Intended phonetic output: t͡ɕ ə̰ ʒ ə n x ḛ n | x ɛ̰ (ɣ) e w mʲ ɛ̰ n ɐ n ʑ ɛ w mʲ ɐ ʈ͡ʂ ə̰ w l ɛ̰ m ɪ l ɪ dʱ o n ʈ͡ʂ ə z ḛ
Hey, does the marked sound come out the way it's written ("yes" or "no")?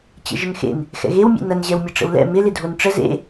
yes